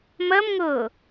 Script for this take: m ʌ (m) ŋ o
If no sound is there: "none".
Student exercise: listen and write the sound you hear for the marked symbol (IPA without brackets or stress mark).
m